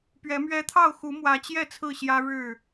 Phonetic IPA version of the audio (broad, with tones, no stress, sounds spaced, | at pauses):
p ɥ ɛ˨˦ m ɥ ɛ˦ t̪ʰ ɑ˥˨ ʊ̯ x u˨˦ m w ä˨˦ t͡ɕ j ɛ˥˨ t͡sʰ ɹ̩˥˨ ɕ j ä˦ ɻ ɻ̩˥˨